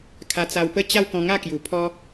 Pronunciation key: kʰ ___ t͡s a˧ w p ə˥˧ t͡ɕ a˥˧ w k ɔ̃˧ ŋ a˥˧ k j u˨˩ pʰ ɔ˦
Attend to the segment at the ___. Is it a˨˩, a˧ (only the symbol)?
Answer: a˧